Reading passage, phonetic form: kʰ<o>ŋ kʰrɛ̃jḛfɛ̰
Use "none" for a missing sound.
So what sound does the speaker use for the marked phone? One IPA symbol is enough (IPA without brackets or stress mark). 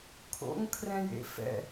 o̰